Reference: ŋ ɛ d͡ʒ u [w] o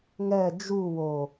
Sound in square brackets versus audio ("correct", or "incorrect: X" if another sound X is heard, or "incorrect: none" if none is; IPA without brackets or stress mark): correct